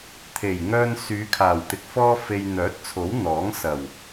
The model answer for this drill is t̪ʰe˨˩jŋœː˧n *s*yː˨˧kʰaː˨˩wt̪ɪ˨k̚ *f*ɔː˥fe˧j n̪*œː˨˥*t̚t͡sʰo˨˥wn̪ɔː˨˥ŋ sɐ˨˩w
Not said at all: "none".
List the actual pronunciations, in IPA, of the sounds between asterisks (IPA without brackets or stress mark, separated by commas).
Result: s, f, œː˨˥